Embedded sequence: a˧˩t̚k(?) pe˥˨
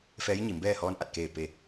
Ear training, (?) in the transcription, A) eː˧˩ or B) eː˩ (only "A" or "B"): A